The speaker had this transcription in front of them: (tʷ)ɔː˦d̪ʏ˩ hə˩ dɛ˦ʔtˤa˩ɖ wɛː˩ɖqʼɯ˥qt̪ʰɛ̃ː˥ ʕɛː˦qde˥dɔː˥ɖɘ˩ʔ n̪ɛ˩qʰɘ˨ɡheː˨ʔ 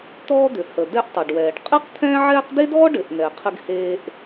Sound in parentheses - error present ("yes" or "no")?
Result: yes